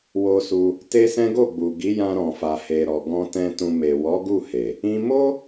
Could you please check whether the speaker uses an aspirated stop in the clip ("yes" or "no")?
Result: no